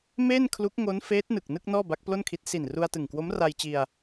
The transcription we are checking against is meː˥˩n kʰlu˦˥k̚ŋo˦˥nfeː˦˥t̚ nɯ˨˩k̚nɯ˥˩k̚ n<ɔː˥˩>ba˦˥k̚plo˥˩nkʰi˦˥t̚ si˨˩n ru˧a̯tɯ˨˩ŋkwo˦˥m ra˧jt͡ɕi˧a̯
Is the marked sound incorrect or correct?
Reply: correct